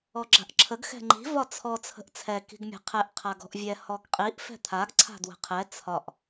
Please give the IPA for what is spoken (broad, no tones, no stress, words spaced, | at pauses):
ɔɡ͡ǁa̤ʔǁʰəɡ xɛ̤ŋ͡ǃi̤ vɒt͡sʰɔ t͡sʰə̤ʔt͡sʰɛ ki̤ɡmʲa̤qʰɛʔ qʰaɡɔ̤ʔvʲɛ hɔɡqʼiʔ fɛ̤t̪ʰaɡ ǀʰa̤dwə̤qʰɛ t͡sʰɒʔ